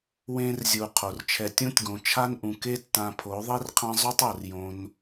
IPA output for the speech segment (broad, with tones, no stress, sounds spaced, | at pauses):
w ẽ˦ r zʲ u˧ qʰ o˨ r t͡ʃʰ ɛ˧ tʲ ũ˦ tʲ ɡ õ˨ t͡ʃʰ a˦ n ʔ ũ˨ k e˦ tː ã˧ pʰ o˨˦ ðˤ i˦ r qʰ ã˦ zˤ u˦ tˤ o˨ r j õ˧ n